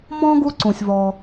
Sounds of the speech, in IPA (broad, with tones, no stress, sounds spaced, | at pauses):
m ɔ̃˥ ɡ u˥ ǀ ũ˩ sʲ v ɔ˩